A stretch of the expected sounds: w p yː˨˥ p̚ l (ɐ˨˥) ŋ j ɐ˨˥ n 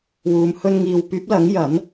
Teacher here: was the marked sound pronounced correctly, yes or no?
yes